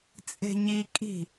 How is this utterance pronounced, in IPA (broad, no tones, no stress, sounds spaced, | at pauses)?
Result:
t͡sʼ e̤ ɲ i kʼ i̤